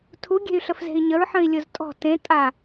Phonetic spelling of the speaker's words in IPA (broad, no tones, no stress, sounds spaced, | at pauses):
tʰ u ɡʲ e̤ y̯ ɬ ə f z e̤ i̯ ɲ ə ɹ ħ ə̃ i̯ lʲ ʊ z tʼ ɔ̤ t ẽ tʼ a